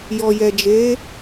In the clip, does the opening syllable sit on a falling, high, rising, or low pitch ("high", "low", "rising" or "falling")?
low